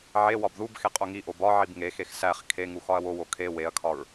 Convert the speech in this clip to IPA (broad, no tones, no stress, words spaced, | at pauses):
ʕe wɒbðubxe qʼoŋiʔo bɒʕib ŋexex sæχ kʰe ŋuxɒɐ̯wowo kʰe weɐ̯kʰɒɹ